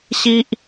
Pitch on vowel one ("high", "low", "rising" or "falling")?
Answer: high